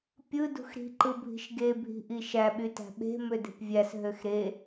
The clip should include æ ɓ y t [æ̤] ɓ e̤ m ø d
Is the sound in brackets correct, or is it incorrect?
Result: correct